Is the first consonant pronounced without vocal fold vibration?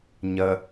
no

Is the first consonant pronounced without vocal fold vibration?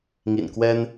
no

